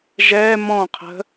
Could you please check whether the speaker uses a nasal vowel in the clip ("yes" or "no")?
yes